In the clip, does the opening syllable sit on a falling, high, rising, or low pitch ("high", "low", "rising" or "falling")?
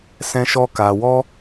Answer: high